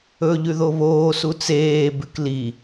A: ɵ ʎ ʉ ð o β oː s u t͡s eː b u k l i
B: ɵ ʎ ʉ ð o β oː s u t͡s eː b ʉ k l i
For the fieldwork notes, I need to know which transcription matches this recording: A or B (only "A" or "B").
B